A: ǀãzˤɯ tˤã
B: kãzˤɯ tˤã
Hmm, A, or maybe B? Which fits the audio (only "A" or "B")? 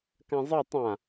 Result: B